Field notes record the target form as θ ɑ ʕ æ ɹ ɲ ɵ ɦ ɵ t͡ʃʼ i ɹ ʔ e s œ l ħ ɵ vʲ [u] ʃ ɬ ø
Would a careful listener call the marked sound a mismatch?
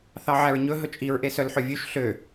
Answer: yes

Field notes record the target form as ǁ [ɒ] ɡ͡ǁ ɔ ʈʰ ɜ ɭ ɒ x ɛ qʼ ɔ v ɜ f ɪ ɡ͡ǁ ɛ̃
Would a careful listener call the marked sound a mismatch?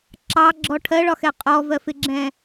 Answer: yes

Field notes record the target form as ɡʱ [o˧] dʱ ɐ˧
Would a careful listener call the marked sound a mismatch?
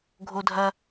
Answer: no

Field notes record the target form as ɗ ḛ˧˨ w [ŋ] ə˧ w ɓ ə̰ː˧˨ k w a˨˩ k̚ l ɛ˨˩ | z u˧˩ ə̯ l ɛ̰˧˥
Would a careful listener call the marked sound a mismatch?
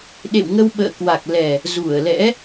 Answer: no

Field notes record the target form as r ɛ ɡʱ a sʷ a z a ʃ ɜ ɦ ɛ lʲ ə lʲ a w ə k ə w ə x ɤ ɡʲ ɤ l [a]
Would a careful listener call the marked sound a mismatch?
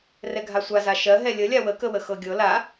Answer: no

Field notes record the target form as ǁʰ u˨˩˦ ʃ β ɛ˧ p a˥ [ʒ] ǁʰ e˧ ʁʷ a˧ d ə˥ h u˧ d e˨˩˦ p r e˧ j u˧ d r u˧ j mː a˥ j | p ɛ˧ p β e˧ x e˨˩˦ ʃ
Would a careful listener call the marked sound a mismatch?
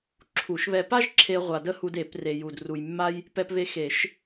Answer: no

